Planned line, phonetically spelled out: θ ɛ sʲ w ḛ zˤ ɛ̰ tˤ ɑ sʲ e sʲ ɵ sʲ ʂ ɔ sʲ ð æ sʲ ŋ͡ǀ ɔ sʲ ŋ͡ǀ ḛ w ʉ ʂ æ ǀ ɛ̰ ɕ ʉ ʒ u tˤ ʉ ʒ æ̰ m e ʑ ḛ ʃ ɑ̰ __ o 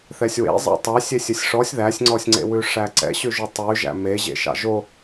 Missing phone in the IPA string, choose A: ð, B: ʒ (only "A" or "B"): B